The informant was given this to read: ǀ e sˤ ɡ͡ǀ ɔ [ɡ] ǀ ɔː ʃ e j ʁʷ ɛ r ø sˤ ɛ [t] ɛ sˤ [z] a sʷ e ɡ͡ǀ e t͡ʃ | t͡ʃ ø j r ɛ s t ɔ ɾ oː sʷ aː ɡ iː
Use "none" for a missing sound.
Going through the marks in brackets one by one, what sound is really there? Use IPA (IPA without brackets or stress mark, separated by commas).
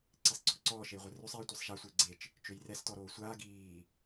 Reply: ɡ, tʷ, ʃ